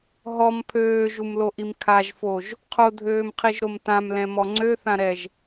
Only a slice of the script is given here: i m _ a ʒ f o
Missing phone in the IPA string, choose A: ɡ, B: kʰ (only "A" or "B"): B